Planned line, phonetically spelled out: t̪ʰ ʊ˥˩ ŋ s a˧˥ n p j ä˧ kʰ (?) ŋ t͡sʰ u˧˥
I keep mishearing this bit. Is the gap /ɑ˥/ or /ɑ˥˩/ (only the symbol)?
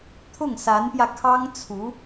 ɑ˥